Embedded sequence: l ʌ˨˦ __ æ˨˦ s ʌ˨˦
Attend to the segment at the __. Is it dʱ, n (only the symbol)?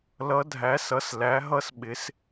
dʱ